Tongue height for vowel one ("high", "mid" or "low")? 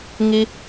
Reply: high